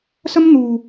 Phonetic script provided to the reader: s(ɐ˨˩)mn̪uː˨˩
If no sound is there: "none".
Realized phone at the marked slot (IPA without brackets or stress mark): ɐ˥